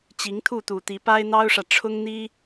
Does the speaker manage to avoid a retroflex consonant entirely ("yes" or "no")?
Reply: no